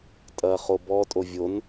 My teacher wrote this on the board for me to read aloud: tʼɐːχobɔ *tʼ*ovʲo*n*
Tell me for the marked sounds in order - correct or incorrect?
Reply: correct, correct

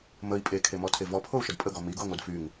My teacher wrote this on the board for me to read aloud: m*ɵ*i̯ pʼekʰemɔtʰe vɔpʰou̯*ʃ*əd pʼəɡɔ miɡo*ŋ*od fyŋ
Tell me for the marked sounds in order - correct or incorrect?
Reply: incorrect, correct, correct

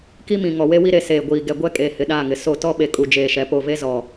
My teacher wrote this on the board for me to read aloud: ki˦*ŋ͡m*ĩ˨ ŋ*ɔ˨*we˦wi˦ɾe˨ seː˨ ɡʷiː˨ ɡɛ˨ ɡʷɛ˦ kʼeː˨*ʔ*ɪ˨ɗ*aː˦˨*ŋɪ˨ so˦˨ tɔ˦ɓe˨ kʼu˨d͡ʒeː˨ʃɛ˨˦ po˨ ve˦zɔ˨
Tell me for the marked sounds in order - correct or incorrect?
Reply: incorrect, correct, incorrect, correct

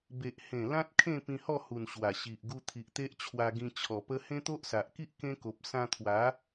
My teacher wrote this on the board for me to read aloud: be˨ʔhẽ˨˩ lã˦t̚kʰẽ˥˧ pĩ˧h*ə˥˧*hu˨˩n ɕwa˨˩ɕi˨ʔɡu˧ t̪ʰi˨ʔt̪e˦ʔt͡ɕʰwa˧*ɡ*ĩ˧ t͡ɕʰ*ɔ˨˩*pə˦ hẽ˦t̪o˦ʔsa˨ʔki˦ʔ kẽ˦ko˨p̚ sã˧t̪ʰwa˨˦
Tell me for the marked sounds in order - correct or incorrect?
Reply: incorrect, correct, correct

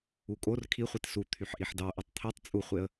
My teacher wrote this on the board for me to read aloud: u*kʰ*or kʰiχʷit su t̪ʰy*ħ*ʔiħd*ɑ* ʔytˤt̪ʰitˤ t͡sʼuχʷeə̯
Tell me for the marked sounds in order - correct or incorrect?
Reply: incorrect, correct, correct

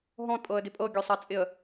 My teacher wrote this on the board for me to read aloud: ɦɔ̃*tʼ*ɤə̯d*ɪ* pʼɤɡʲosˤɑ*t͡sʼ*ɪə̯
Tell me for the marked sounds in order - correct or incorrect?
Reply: correct, correct, correct

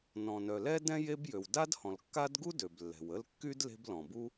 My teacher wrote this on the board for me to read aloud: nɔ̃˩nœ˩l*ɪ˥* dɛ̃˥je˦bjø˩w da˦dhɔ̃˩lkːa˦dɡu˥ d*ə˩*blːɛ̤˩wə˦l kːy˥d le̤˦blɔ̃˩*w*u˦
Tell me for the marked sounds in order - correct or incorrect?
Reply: incorrect, incorrect, incorrect

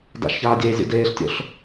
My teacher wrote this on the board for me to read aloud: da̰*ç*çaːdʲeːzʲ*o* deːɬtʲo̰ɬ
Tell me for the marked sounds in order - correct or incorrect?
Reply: incorrect, incorrect

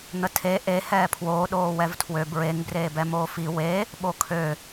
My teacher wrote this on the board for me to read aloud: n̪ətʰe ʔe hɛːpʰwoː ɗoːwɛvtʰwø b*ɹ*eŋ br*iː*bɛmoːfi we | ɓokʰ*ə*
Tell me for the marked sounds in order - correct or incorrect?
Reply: correct, incorrect, incorrect

